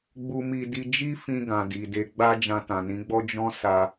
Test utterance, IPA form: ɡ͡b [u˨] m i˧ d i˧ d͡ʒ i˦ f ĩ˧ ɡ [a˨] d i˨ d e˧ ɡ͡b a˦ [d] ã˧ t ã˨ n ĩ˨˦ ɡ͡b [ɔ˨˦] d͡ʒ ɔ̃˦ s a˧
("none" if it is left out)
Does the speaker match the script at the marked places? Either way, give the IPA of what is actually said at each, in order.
u˧, ã˨, d͡ʒ, ɔ˦

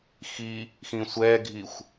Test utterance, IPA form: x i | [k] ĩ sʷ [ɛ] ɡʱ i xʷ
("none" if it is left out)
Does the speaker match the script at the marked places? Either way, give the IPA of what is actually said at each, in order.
x, ɛ

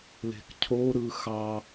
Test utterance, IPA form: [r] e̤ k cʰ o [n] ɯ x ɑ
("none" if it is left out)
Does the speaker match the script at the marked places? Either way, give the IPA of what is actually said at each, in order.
l, ɾ

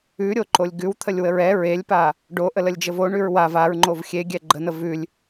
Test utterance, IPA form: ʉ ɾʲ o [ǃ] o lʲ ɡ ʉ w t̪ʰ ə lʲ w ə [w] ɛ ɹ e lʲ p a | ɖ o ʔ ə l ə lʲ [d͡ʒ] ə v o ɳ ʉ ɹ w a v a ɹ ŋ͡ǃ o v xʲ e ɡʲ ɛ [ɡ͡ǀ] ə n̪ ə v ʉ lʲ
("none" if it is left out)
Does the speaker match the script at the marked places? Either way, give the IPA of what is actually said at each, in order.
ǃ, ɹ, d͡ʒ, ɡ͡ǃ

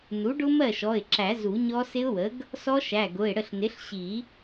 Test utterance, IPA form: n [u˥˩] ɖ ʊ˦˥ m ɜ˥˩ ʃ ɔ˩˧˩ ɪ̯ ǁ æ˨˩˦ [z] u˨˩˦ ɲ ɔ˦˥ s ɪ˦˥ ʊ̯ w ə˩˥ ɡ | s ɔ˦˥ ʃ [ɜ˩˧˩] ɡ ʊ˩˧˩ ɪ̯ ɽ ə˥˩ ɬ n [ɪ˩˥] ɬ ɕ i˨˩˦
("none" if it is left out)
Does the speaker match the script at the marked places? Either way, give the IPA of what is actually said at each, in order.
u˩˥, z, æ˩˧˩, ɪ˩˥

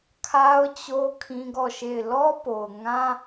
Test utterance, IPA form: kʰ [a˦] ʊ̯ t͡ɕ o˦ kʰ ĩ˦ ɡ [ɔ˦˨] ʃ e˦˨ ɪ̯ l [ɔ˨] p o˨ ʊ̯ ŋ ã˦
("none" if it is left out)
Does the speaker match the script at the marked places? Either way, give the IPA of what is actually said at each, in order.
a˦, ɔ˦˨, ɔ˦

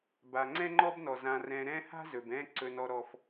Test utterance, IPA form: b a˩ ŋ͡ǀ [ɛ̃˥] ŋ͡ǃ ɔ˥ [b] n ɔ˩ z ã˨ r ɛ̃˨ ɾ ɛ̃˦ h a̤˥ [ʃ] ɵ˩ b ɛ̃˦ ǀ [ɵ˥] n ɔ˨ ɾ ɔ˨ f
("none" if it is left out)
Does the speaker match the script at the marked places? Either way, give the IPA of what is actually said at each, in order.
ɛ̃˥, b, z, ɵ˨

